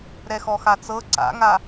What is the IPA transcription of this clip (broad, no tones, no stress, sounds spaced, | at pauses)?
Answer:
ɾ ɛ x ɔ x a t͡s ɤ ǀ a̰ ŋ a